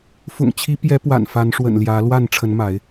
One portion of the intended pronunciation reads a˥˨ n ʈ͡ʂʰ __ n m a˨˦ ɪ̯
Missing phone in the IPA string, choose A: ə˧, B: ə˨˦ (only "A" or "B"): B